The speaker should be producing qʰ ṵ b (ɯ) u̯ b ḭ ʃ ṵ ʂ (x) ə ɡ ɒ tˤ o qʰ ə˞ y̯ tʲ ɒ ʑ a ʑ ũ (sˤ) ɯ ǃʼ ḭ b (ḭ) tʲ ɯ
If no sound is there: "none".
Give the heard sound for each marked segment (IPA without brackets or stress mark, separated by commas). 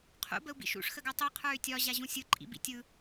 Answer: ə, x, sʲ, ḭ